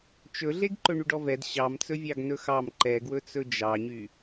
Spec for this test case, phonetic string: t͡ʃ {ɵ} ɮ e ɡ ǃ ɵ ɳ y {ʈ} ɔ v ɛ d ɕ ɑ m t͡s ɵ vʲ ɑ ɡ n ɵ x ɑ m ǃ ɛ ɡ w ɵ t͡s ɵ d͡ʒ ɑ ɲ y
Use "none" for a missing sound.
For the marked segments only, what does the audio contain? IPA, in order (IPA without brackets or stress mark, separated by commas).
ɵ, ɖ